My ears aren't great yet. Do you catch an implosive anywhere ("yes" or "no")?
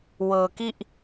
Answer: no